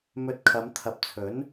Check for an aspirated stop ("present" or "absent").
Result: present